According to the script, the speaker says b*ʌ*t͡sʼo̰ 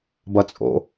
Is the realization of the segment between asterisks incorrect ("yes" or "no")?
no